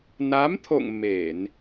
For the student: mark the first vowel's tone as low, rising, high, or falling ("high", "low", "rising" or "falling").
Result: rising